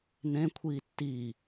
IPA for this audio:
nẽkʷʰiː tːi

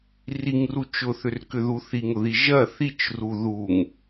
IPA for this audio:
riŋru t͡ʃʊθʏrkʏðu θiŋʊði ʒɐ θit͡ʃru ðuŋ

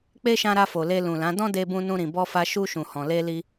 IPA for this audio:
k͡pe˦ʃã˧ɾa˧fo˨ le˧lũ˨lã˨˦ dɔ̃˦de˧bũ˧ nũ˧ɾĩ˨bɔ˧fa˧ ʃu˧ʃũ˨hɔ̃˨ le˧li˧

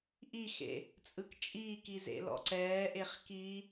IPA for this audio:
ʔixḛ | t͡sʼɯkt͡ʃʼiːki zḛlɔ̰ǀɛːʔeχ ki

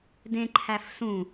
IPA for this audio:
dẽǃʰæf sũ

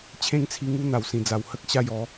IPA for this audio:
t͡ɕʰẽ˥˧ŋt͡sʰi˧ŋu˦ n̪a˨˩wsĩ˨˩d͡za˨˩w hə˦k̚ɕa˥˧j ɔ˨˦

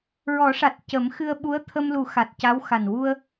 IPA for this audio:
ɹɔ˨˩˦ʂa˨˩t̚ cə˨˩˦mxɨ˧ə̯ ɓu˧˥ə̯t̪ʰə˧mlu˨˩˦ xa˨˩t̚ca˧˥w xa˨˩n wu˧ə̯

